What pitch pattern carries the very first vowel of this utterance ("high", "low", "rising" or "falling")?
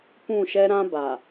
falling